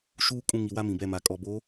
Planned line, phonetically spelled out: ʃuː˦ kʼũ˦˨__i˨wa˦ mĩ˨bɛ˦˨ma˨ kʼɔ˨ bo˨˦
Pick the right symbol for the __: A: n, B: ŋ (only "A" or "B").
B